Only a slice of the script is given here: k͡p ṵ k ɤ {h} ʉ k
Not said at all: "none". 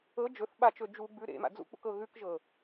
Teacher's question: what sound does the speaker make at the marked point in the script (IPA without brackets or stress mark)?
ɣ